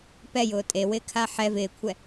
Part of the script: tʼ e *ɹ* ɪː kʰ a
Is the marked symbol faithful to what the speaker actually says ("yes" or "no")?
no